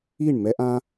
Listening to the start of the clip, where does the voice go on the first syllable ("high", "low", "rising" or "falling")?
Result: falling